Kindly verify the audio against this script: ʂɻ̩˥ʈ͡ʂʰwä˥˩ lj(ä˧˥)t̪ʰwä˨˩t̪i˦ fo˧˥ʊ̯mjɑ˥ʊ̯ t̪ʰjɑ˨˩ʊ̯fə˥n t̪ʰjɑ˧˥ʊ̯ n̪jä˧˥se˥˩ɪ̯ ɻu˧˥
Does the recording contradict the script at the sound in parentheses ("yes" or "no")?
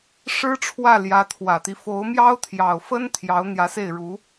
no